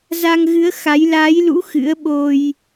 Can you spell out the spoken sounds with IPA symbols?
za˧ŋɣɨ˨˦ə̯xa˨˦j laː˨˦jlṵ˧˥ xɨ̰˧˥ə̯ɓo˧j

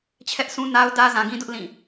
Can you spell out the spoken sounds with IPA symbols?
t͡ɕʰɛ˦ʔsʰũ˦na˦ʊ̯ dä˦zã˨ɡĩ˦dʊ˦ʔ lĩ˦˨

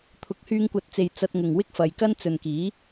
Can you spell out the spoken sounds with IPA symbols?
t̪ʰʊ˨˥k̚hyː˧ŋkʷɐ˨˥t̚t͡se˨j t͡sɐ˧t̚ŋʊ˨ŋwɪ˥k̚ fɐ˨jkɐ˥n t͡sɵ˨nkiː˨˥

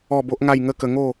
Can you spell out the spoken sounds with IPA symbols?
ɔ˥˧bo˦ʔŋa˥˧j ŋə˥˧kə˧ŋo˥˧

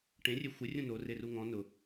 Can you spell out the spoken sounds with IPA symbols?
ʈẽrʲe xʷɪ rʲũno reruŋɔ̃ nʊ

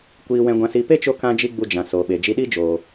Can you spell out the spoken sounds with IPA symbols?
kʷiː˧wɛ̃˧ɡʷã˧si˧ pe˦t͡ʃo˧ kã˦d͡ʒi˦ɡ͡bu˧ d͡ʒã˨so˨ɓe˨ d͡ʒi˧ɗi˦d͡ʒoː˨

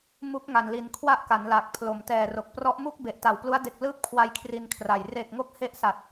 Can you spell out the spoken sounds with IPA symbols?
mu˦˥k̚ŋa˨˩nli˨˩n kʰwa˥˩ʔka˩˦nla˨˩k̚pʰlo˩˦m tɛː˨˩ro˨˩k̚prɔ˦˥ʔmu˥˩k̚ be˨˩ʔta˨˩wplu˦˥a̯ de˨˩k̚lɯː˦˥p̚kʰwa˧j kʰri˧nkʰra˨˩j re˨˩k̚ŋo˦˥k̚ he˦˥ʔsa˨˩t̚

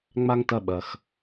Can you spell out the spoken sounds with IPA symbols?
ŋ͡ma˥ŋtɐ˦ ɓɐ˨x

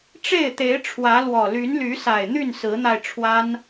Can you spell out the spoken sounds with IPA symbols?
ʈ͡ʂe˥˨ɪ̯t̪e˨˦ɪ̯ʈ͡ʂʰwä˨˦ lwɔ˨˩ly˨˦nly˨˦sa˨˩ɪ̯ n̪y˥˨nsɹ̩˨˦n̪a˧ɪ̯ʈ͡ʂʰwa˦n

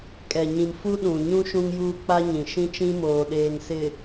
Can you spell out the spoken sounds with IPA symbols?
kʼɛ˨ɲĩ˨m fu˦ɗũ˨ɲũ˦ ʃũ˦ŋjuː˦k͡pa˦ɲĩ˨ ʃĩ˦t͡ʃĩ˦moː˨ɗeː˨ŋ sɪ˨

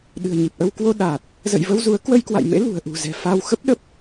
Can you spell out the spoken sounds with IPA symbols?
ɗɨ̤˨˩ə̯ɲi˨˩p̚ʔə˧w kwo˧ ɗaː˨˩t̚ | zə̰˧˨jvə˧wzu˨˦ə̯ kwə˧jkwa̰˧˨j mḛ˧˥lṳ˨˩ə̯ʔṳ˨˩ zɛ̤˨˩fa˧w xə˦˥p̚ɗə˦˥p̚

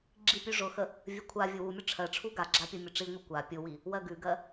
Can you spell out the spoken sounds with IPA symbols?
ɡ͡ǁipʲʉʐʊxə | vʲəkʷʰavʲʊ wumʲʊ ʈ͡ʂʰɜʈ͡ʂʰu ɡaɡ͡ǁa pʲʊmʲʊʈ͡ʂiŋʷi kʷa pʲʊwi | wɜɡʉɡɜ

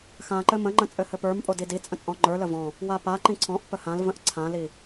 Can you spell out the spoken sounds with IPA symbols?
xã ǃɘmə̃ŋ͡ǃə̃ t͡sʼɘhɘpə˞mpʼo didit͡sʼə̃ t͡sʼɔ̃ŋ͡ǃə˞lə vɔ̃ | wapaǃĩ ǀʰɔ̃ʔ pəhãlvə̃ʔ ǀʰãli

